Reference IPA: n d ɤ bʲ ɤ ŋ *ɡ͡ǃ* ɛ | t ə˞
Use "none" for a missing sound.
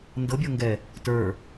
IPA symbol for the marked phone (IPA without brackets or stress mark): ɡ